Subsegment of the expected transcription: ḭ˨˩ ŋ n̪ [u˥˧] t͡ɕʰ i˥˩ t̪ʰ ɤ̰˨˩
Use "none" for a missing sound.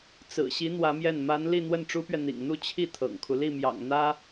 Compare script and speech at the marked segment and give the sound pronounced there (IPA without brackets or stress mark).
u˥˧